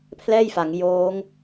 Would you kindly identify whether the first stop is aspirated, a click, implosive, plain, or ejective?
aspirated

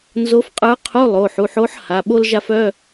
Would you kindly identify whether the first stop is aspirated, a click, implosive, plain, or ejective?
ejective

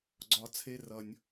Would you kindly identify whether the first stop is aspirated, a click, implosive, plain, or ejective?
click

